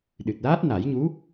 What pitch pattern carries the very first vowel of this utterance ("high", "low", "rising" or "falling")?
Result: low